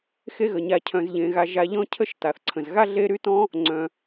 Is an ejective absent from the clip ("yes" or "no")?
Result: yes